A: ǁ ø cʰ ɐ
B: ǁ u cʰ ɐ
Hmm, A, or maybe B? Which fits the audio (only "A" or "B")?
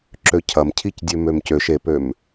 A